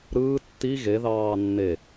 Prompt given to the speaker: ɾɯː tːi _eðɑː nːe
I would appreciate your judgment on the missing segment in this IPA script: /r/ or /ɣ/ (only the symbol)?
ɣ